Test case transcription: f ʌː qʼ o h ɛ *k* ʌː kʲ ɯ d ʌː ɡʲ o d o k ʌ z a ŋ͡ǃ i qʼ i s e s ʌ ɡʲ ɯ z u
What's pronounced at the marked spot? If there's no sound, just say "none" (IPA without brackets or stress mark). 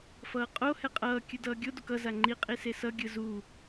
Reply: qʼ